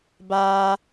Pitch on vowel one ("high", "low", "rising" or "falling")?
high